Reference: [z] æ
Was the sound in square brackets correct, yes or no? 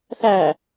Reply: no